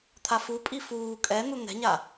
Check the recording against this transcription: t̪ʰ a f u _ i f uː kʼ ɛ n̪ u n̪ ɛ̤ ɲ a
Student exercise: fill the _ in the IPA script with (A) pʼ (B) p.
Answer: A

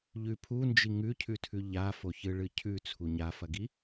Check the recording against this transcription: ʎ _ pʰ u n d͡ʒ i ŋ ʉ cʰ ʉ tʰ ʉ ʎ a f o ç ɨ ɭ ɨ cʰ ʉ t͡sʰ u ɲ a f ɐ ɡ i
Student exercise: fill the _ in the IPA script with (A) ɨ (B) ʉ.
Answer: B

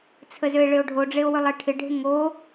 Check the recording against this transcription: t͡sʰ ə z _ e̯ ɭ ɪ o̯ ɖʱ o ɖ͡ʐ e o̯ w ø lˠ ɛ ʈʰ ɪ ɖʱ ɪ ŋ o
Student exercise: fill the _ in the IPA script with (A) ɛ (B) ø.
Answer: B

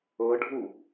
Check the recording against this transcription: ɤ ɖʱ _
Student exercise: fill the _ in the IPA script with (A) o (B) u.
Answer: B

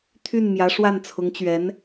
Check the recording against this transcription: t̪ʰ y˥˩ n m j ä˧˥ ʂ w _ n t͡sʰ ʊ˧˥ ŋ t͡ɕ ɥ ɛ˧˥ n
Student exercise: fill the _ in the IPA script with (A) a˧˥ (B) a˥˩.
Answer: B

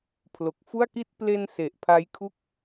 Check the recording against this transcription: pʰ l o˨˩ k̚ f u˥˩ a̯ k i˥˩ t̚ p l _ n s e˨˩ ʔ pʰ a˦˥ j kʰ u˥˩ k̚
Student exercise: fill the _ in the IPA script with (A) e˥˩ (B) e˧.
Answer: B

